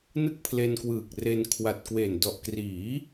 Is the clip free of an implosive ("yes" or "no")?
yes